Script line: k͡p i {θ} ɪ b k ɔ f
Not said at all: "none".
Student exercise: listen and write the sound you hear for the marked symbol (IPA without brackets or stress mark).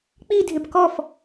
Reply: dʱ